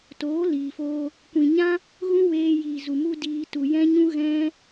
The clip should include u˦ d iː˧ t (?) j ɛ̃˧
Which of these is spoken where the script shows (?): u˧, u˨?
u˨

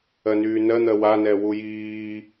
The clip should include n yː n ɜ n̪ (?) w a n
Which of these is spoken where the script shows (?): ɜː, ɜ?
ɜ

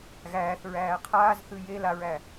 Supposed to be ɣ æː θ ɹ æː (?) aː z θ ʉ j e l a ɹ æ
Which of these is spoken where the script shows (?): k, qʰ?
qʰ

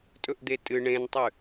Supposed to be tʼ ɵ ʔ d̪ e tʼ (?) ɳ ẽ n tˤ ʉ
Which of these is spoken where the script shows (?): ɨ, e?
ɨ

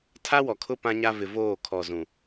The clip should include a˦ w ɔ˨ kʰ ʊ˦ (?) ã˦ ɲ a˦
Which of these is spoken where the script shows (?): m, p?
p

